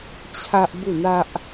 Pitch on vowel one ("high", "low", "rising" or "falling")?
high